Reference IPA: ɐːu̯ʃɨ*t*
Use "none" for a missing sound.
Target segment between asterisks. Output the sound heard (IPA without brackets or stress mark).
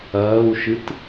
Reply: t